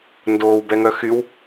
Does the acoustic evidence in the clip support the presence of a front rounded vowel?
yes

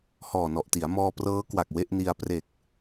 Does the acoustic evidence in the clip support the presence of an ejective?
no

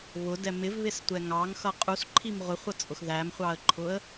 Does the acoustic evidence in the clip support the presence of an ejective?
yes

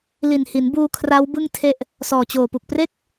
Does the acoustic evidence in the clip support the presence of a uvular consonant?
no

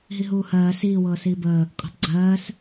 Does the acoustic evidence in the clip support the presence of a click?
yes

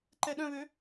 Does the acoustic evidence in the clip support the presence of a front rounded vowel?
yes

